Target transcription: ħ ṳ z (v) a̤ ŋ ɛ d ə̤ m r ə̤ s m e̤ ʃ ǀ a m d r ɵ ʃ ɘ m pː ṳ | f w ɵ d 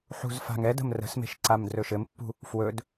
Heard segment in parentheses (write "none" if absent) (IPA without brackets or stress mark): f